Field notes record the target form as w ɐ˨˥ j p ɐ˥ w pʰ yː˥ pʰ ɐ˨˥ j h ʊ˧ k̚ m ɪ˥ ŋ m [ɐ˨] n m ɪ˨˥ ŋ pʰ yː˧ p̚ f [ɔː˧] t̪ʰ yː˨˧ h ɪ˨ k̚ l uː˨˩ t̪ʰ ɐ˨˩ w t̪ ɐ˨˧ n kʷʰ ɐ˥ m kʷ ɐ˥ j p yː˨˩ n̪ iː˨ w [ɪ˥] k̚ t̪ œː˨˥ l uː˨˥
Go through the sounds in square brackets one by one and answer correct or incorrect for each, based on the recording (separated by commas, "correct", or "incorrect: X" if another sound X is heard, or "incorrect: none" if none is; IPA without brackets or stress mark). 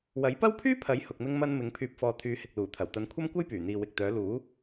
incorrect: ɐ˥, correct, incorrect: ɪ˨